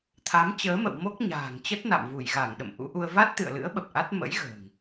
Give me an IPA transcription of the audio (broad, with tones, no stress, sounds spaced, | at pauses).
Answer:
t̪ʰ a˨˦ m t͡ɕ əː˨˦ m ə̰˧˨ w m o˦˥ k̚ ɲ a̤ː˨˩ ŋ t͡ɕ ə˦˥ t̚ n a̰˧˨ m v u˧˩ j ɣ a˧˩ ŋ ɗ ə̰˧˨ m ʔ ṵ˧˥ ʔ u˧ ə̯ v a˦˥ t̚ t̪ ɨ̰˧˨ ə̯ l ɨ̰˧˥ ə̯ ɓ ə˨˩ p̚ ʔ a˦˥ t̚ m ə̰˧˥ j ɣ ə̤ː˨˩ ŋ